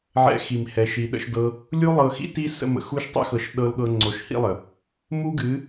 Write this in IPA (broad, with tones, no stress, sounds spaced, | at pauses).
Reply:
ʕ ɛ̰˧ x i˨ m h ɛ˧ ʃ i˧ ɗ ə̰˦ ʃ d ɤ˦ | lʲ u˦ lˠ ɤ˧ x ḭ˦ t i˦ s ə̰˧ m ə̰˨ x u˦ ʃ tˤ ḭ˦ x ɤ˧ ʃ ɗ ɤ˦ l ɠ ɤ˦ ŋ͡ǀ o˧ ʃ h ḭ˦ lˠ ə˨ | m u˦ ɡ ɨ˨˦